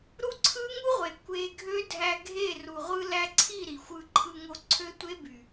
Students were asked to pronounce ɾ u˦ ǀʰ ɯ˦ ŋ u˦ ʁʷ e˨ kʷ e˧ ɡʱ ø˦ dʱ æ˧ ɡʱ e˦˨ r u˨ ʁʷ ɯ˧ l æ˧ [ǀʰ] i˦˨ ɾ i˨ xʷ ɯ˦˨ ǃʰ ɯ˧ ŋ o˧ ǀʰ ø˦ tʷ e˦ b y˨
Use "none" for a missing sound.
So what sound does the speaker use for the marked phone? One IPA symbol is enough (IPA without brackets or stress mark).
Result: ǀʰ